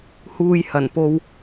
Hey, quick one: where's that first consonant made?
throat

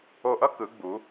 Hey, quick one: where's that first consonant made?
throat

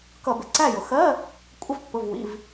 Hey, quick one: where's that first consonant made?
velum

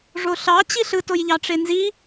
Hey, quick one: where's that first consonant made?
retroflex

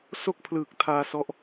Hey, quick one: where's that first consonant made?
tongue tip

